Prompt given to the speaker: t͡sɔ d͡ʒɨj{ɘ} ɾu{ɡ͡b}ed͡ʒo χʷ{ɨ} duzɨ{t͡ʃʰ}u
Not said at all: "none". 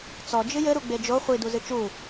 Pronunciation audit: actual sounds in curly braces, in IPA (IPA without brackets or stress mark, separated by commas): ɘ, ɡ͡b, i, t͡ʃ